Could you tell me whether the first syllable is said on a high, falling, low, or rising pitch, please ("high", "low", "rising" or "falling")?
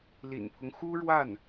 low